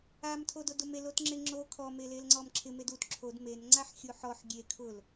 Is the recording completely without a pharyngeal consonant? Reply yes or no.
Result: no